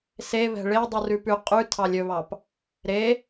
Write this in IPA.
s e β ɛ̤ ɭ e dˤ u r ʉ p ʉ qʼ ʉ tʰ ɑ lʲ ɵ β ɑ p | ɾ e

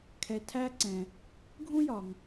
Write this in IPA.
kʰ ɛ˨ tʰ æ˦ ǀ ɛ̃˩ | ɡʱ ũ˥ j ɒ˩ ŋ

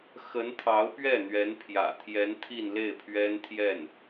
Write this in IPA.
x ə˧˥ n t̪ʰ ɑ˧˥ ʊ̯ p ɥ ɛ˥˩ n̪ ɥ ɛ˧˥ n pʰ j ä̰˨˩ t̪ʰ j ɛ˧˥ n t̪ʰ i˥˧ n l e˥˩ ɪ̯ pʰ ɥ ɛ˥ n t̪ʰ j ɛ˥˩ n

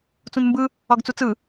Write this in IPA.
t͡s ũ n m b ɯ | ɒ ɡ t͡s u t͡s ɯ

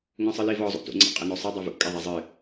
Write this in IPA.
ŋ õ sˤ ɨ l i v ɔ zˤ ṵ t ṵ ŋ͡ǀ a̰ qʼ ɘ n o sˤ ɘ dˤ a v ṵ kʼ e ðˤ a zˤ ɨ

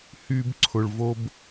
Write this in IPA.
h y˧ b ǀʰ ʊ˨ ɭ v o˦ b

